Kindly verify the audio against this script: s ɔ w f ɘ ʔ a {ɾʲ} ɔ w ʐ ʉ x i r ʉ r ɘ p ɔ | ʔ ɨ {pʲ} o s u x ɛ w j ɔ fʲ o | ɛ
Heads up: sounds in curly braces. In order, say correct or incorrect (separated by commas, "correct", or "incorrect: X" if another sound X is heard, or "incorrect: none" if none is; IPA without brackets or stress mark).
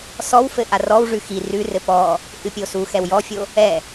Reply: incorrect: r, correct